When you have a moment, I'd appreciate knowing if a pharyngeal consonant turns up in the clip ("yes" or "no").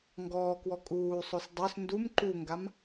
no